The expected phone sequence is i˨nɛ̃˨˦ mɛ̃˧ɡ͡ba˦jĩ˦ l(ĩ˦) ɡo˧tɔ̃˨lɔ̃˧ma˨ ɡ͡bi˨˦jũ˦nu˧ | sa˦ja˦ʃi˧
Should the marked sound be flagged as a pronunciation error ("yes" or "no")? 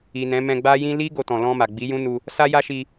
yes